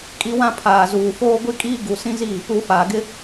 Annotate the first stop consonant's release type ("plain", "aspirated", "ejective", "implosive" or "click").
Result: ejective